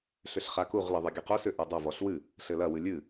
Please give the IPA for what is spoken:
ɬʏɬχakuʁ lɘðˤɨɡʲɐqu sʏ ʔudˤɐ vɔɬwɨ | ɬɘlɐ wɨlʲɨ

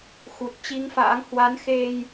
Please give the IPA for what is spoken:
xu˨˩t̚t͡ɕi˧ŋfa̰ː˧˥ŋ hwa˨˦nxe˧j

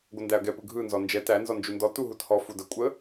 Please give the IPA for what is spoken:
ɡʷɐndæɐ̯ɡɛ pɯɡʱɯ nzɔnd͡ʒɛ tæ nzɔnd͡ʒundɔ tuɦuthɔ fudə kʷʼə

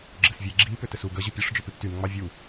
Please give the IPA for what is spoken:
ɡ͡ǁɘsvʲe ɡ͡ǁi pʏtɘsu ɡə ʑopʲoʂ d͡ʒʏpiptym ŋ͡mɑvʲu

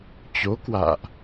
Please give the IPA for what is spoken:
t͡ɕo˨˦ kwa̰ː˧˨ʔ

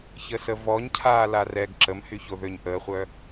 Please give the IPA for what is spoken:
çəsəvɔɲ cʰaːlarɛɡ ǁəmhyçoðøɲ ʔəːχʷœ

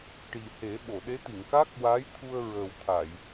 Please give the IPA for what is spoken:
ʈi˨˩he˨˩˦ ɓo˨˩˨ɗe˧˥t̪i˨˩˨ŋ ka˦˥k̚wa˧˥j t̪ʰu˧ə̯ɹəː˨˩wt̪ʰa˨˩˨j

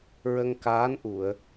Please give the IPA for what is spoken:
ɹə˧ŋkaː˧˥n ʔu˨˩˨ə̯

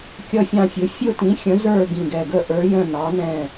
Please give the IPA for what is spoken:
kʲʌ˦˨fʲɑ̃˦˨fʲʊ˨˥ fʲʊ˦˨tĩ˨˥ xʲə̃˨˥zə˞˦˨ ɡĩ˦˨ɡɛ˦˨ ɡə˦˨ʔə˞˨˥jə̃˦˨ nɑ˨˥nɛ̃˦˨

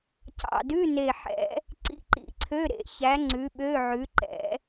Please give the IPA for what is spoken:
cɑ̰˨˩dʉ˧˥˧ ne˨˩ħɛ̰˨˩˦ | ǀḭ˧˥˧ǃḭ˨˩˦ǀʰø˧˥˧ ɾḛ˨˩˦çæ˨˥ ŋ͡ǀʉ˨˥ɓø˧˥˧ʕʉ˨˥ ǃɛ̰˨˩˦

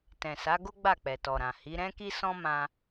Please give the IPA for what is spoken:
tɛ̃˨sa˨˦ɡo˦ ɡ͡ba˦˨k͡pɛ˨tɔ˨ɾã˨ hi˨˦ ɾɛ̃˦ ki˦sɔ̃˦mã˧

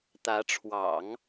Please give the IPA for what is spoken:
t̪ä˧˥ʈ͡ʂʰwɑ̰˨˩˦ŋ

